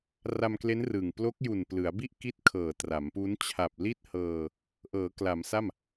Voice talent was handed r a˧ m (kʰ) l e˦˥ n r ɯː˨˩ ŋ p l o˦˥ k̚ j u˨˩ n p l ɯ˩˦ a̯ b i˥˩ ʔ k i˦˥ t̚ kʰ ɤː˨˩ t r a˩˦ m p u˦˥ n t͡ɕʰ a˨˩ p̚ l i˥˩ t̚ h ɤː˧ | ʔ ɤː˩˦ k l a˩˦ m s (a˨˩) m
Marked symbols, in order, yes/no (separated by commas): no, no